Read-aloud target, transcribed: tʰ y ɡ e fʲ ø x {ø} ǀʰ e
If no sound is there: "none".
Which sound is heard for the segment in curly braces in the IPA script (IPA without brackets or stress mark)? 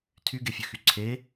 y